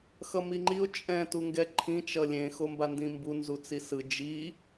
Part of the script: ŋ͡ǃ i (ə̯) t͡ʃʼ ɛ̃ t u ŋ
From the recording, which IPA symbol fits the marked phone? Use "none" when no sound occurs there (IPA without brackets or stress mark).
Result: ʊ̯